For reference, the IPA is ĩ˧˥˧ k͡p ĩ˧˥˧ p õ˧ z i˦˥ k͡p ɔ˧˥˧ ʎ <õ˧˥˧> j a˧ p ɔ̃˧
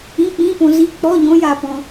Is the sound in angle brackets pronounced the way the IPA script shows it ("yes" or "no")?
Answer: no